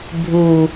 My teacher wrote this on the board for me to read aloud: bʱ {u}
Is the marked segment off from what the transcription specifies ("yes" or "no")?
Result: no